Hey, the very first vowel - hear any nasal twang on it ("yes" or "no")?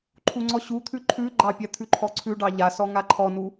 no